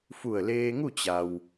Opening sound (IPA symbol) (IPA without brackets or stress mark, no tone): f